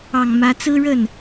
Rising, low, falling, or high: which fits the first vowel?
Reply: low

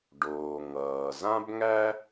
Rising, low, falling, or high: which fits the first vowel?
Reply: low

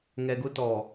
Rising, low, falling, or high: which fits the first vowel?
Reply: low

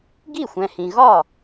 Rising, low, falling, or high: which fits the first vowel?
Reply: falling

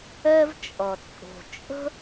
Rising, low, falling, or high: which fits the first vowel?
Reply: high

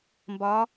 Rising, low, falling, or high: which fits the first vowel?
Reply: rising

